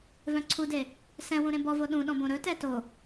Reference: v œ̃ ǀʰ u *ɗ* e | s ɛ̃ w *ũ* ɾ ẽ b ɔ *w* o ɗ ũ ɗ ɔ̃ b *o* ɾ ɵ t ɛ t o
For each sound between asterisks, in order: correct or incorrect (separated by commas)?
incorrect, correct, incorrect, incorrect